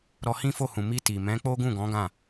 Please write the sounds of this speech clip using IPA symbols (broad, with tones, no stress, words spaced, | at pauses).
ɾɔ˧hĩ˦fo˦˨hũ˨ mi˧ ti˨ mɛ̃˨˦ k͡po˦ɡũ˦˨ɡɔ̃˨˦ ɡã˦˨